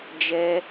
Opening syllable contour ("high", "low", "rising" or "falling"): high